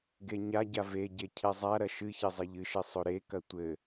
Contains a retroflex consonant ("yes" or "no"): no